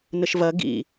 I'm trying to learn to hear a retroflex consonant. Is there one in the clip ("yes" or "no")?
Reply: no